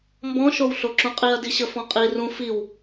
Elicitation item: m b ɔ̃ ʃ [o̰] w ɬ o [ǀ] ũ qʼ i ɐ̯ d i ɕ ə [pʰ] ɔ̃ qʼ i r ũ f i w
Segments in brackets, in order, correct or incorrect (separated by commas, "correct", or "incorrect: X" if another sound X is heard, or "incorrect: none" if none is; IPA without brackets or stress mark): incorrect: o, incorrect: ǁ, incorrect: f